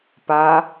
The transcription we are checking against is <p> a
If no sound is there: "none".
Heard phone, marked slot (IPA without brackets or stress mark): p